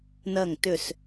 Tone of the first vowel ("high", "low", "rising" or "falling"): falling